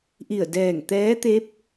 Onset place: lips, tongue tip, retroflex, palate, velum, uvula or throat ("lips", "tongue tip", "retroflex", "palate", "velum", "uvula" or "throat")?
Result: throat